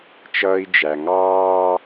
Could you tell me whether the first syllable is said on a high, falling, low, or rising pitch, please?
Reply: high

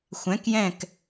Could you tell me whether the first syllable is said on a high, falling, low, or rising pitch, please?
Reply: rising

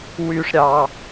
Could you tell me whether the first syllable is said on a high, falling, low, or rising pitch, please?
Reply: high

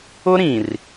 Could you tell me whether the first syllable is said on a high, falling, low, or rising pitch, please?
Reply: high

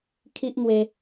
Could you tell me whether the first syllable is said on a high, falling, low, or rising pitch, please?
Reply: high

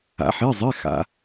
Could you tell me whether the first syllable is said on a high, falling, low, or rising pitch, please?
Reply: rising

